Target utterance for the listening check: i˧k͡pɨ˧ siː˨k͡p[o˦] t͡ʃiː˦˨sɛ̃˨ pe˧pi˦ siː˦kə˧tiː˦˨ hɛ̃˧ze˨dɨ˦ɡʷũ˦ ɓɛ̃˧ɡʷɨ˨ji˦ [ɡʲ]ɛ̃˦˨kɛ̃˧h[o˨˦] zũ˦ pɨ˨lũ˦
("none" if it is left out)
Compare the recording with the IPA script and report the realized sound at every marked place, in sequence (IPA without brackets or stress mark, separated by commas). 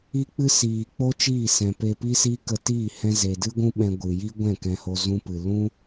o˦, ɡʷ, o˧